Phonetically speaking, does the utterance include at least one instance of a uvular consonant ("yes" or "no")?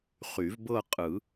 yes